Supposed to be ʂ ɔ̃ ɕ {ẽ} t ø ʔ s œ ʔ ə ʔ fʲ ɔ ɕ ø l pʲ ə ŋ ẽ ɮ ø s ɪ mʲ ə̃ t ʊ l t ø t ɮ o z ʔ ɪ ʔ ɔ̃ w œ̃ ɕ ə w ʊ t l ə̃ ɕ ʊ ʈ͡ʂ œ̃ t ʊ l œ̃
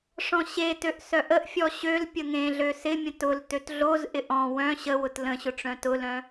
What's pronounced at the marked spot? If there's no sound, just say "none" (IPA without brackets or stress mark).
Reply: e